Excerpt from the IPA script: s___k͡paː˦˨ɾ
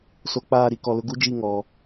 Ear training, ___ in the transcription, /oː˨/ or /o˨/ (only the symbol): o˨